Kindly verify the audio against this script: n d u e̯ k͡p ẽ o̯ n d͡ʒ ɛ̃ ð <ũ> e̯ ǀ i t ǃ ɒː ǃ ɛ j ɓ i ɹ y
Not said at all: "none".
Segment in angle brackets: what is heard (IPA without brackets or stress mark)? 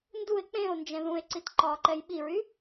ũ